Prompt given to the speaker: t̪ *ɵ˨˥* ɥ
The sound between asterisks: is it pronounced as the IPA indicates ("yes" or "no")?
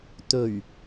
no